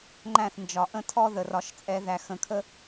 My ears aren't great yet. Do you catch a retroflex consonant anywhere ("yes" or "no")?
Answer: no